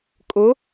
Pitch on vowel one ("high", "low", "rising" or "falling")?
rising